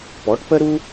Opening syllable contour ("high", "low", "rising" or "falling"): rising